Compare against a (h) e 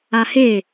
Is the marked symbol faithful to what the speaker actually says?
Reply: yes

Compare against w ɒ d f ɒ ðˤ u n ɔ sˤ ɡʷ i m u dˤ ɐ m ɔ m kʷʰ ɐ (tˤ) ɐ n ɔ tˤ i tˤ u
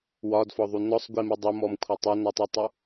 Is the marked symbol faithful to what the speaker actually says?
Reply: yes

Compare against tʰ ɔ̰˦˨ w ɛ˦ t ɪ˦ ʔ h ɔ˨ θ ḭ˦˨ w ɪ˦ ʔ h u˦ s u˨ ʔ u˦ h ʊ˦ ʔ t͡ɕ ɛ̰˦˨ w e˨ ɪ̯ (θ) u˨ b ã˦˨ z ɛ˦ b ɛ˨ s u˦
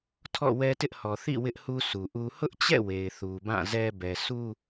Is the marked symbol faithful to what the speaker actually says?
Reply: yes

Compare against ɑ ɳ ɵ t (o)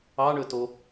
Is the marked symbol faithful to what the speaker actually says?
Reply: yes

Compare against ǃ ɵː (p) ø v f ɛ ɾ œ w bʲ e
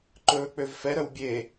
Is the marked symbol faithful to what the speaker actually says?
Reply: no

